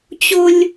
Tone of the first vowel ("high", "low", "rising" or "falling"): high